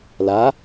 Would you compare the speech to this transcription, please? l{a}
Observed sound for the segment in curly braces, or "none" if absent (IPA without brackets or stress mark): a